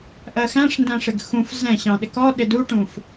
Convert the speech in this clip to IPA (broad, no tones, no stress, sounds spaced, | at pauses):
ʔ ɜ x æ̃ ʂ n d æ̃ ʂ ɪ ɡ x ũ f z ɛ̃ ɕ ɑ̃ ɗ ɪ k ɔ ɗ ɪ d u ʈ ũ f